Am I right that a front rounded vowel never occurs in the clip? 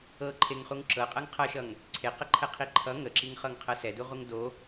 yes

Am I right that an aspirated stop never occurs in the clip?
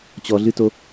yes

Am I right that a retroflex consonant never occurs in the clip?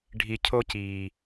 no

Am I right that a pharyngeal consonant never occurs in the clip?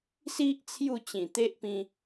yes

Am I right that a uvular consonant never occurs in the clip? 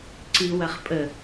no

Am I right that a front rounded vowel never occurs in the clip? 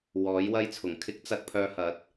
no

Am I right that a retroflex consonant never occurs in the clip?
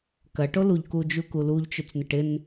no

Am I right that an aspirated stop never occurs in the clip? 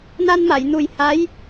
yes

